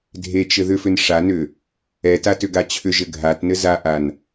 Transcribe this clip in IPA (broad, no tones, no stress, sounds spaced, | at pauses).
dʱ e t͡ʃ ɘ ð ʏ f ʏ n ʂ a n ʏ | ɛ t a t ʏ ɡ a t͡ɕʰ ʏ ʒ ɘ ɡʱ a t n ɘ z a ʔ a n